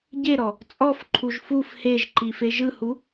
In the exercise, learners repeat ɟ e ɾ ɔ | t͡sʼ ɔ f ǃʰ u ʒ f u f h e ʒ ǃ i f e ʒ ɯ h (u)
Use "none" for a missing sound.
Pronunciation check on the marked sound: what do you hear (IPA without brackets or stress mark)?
u